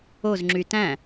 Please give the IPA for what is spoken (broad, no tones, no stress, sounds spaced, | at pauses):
o z ŋ͡ǁ y t æ̃